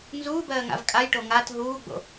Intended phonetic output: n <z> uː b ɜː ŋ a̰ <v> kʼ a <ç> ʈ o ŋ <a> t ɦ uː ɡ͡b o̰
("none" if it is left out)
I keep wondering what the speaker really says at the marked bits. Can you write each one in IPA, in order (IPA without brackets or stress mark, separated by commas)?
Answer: z, v, j, a